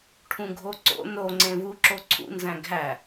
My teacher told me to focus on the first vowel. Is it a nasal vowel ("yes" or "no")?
yes